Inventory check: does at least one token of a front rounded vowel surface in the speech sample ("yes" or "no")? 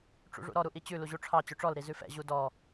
yes